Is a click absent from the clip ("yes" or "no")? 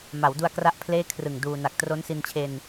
yes